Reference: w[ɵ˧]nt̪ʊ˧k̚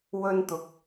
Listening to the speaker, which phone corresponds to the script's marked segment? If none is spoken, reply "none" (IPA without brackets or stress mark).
ɵ˥